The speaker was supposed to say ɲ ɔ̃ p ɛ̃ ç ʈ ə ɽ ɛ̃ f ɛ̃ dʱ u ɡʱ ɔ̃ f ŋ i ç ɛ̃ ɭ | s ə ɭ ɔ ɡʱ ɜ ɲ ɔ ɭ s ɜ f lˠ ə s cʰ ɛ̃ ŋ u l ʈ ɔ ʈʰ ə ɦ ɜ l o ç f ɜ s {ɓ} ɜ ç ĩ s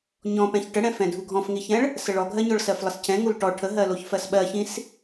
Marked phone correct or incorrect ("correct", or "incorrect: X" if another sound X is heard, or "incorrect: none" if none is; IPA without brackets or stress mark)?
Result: correct